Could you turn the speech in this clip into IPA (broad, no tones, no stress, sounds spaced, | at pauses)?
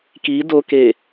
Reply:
k i d o k e